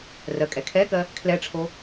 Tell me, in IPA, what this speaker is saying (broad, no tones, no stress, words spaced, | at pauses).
rɜkʼɛkʰɛkɜ | kʰlɛʈ͡ʂʰo